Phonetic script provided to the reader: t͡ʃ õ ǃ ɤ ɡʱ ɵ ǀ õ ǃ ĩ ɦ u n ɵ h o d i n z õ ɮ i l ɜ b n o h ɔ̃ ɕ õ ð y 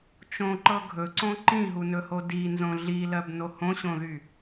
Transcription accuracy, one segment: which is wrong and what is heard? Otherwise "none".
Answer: ɔ̃ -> õ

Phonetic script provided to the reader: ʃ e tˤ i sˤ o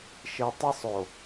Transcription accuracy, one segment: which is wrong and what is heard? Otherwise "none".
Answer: none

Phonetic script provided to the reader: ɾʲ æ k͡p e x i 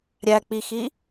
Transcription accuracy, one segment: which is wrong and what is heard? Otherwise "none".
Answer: e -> i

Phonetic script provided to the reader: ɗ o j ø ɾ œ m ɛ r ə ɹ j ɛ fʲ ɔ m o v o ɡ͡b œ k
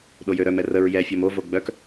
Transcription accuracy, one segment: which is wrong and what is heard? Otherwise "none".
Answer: none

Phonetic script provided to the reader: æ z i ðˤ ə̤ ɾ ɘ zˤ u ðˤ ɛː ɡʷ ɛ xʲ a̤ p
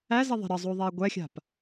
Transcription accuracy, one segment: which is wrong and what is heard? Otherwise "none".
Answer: none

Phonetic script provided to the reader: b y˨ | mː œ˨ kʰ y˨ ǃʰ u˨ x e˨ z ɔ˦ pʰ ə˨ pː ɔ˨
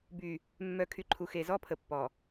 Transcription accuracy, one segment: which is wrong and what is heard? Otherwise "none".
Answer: none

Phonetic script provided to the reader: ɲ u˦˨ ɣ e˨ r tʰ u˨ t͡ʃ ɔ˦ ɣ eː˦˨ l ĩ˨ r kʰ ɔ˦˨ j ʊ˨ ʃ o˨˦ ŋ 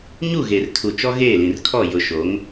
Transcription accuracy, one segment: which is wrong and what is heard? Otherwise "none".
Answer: none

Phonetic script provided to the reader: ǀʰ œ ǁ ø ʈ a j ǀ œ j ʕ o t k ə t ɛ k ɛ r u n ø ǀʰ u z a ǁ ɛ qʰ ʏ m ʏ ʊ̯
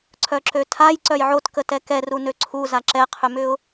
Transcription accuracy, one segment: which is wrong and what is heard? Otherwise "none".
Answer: ʈ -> tʰ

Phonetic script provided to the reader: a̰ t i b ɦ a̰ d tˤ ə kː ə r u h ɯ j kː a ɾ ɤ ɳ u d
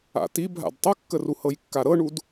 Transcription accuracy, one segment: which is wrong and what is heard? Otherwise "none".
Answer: ɯ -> ɤ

